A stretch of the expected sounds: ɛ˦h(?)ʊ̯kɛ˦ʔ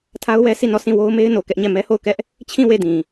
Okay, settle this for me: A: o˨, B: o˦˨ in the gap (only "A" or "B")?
B